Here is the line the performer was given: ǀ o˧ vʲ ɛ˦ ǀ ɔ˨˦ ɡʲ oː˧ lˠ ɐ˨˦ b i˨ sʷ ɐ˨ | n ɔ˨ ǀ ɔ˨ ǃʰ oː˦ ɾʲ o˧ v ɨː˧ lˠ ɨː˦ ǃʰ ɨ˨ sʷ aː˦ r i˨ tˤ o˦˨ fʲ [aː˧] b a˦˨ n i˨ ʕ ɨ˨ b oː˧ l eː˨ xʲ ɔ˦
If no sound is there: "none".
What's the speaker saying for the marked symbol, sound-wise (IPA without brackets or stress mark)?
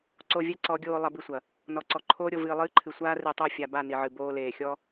a˧